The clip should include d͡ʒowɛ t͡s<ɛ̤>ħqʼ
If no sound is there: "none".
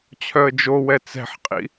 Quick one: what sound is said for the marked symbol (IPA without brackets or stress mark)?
ɛ̤